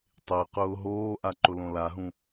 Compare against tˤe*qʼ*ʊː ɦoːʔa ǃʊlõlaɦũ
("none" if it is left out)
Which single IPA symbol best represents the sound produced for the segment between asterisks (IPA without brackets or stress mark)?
q